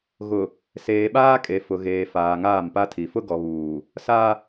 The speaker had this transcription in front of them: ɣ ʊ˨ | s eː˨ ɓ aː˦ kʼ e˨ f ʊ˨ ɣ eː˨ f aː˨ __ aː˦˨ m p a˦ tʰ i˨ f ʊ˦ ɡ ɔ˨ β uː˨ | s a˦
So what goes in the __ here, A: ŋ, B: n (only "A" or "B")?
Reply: A